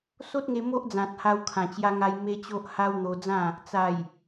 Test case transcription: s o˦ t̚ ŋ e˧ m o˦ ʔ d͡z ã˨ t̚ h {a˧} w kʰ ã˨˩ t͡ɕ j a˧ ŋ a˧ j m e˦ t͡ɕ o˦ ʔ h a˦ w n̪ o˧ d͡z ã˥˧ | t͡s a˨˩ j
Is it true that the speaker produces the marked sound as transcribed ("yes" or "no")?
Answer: yes